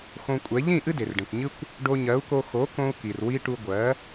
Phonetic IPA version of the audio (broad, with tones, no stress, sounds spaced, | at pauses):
x õ˧ kʷʼ ɛ˩˥ ʎ ĩ˥˩ ʔ ɨ˥ d e˩ r ɖ ẽ˩ kʷ ɲ ɨ˥ kʷ | ɖ o˧ ɲ ɜ˩˥ u̯ k o˧ x o˩˥ k õ˧ u̯ k i˩ r w i˧ ʈ u˧ ɡʷ ɜ˩˥